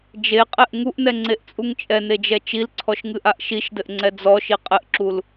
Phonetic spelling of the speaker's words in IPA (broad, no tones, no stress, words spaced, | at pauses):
d͡ʒeqʼɛʔ ŋuʔnɛŋ͡ǀeʔt͡sʼuŋ t͡ʃʼɛned͡ʒɛ t͡ʃilǀʰɔʃŋɨʔaʔ ʃiʃdɘʔŋ͡ǀɛ d͡zɔʃi qʼɘʔǁul